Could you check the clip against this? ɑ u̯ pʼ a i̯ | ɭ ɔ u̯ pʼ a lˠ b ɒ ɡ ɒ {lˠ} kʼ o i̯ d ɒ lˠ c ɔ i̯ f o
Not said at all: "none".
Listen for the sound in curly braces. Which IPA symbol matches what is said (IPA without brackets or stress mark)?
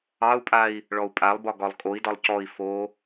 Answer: lˠ